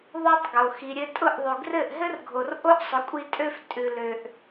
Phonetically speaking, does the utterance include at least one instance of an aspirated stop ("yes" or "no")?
no